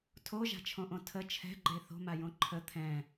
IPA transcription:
tʰoʒa̤t͡ʃʰõʔõ tʰə t͡ʃʰɛ̤ɡ͡ǃe θo̤majõ ǃʰə t̪ʰɛ̃

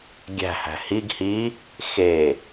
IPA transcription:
ɡʲæ̤hæ̤ hiɡ hi | xe

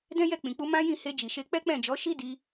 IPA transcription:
dɛ̃˦jɛ˦˨k͡pĩ˨k͡pu˧ mã˦jĩ˦˨ he˧d͡ʒi˨ʃe˧ k͡pɛ˦k͡pɛ̃˦˨d͡ʒɔ˨˦ ʃi˦di˧

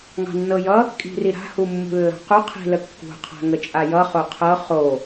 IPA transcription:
ŋɑ̤nːɤjʌ | kʼi̤riɾa̤ humːṳlːɑ̤qu qʰi̤ləkːṳ qʰa̤ŋət͡ʃʼajʌ χoqʰɤ χo

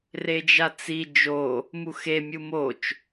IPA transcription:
red͡ʒat͡si d͡ʒo | muxe mʲumot͡ʃ

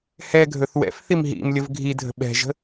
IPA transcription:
hɛ ɡʱɵθwɛ̰fθim ɦḭmlʲəv ɡʱidʱə̤ ɓɛ̤ʒə̤

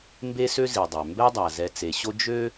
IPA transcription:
mbe˥sø˥zi˩dˤø˩ mbɛ˥dˤa˩ zɛ˨t͡se˩ɕo˦ d͡ʒø˥

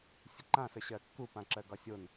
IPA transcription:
sʲəǃãsəɕɜ kːupãǁɜɡɒ sʲon

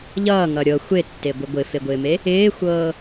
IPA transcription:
ʎʌːŋʌ ɾʲɤ xʷetːeɡʷɪ ɡʷɪfeɡʷɪːme | ɪːxʷɤː

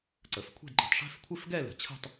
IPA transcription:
ǀə˩˧fkʷʰe̤˥˧dǃə̤˩˧tˤ ʂɛ̤˥˧fkʷʰɪ˥˧fɡɛ˥˧ lə̤˩˧t͡ɕʰə̤˥˧tˤ

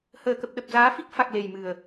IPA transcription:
həː˨˩kə˨˩p̚ɗə˨˩p̚ zaː˨˦fi˦˥k̚ fa˨˩k̚ le˨˩jmɨ˨˩ə̯

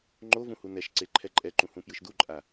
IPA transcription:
ŋ͡ǃovũ hunɛʃǀe ǃʰɛǃʼɛǃũ hũpjɯʃduǃʼa

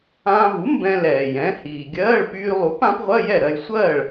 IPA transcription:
ãː˧vu˩˥ mbɛ̃˧lɛː˩ jɛ̃˩˥hiː˩ɡʲɜː˧˥˧ɭ pyː˧lˠu˩˥p ã˩˥pʁʷɜ˧˥˧jɛ˥˩ ɾɜ˧j sʷɜː˥˩ɭ

